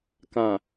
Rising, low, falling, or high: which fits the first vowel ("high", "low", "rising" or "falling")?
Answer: low